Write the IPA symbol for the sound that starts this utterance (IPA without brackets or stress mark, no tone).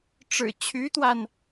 ʈ͡ʂ